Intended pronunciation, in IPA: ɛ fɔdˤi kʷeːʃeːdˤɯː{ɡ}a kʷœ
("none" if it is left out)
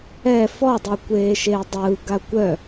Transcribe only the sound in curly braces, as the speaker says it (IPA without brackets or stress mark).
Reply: ɡ